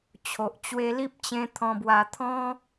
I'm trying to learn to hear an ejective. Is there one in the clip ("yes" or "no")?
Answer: no